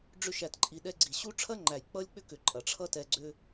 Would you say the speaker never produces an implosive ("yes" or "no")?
no